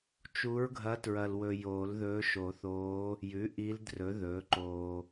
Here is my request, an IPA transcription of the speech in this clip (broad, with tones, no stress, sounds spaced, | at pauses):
t͡ʃ u˧˥ ɹ ɡʱ ɐ˧˥ t ɹ ɐ˨ l w ɵ˨ j oː˨˩˦ l ð ɵː˧˥ ʃ o˨˩˦ θ oː˧˥ | j ʉ˩˥ ʔ i˧˥ l d r ɵ˩˥ ð ɵː˩˥ ǃ oː˨